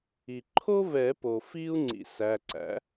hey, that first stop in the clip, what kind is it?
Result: click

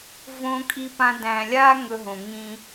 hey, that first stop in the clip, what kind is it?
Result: ejective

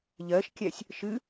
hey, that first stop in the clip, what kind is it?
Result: plain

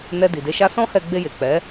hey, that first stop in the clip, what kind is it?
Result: plain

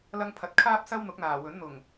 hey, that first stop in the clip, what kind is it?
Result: aspirated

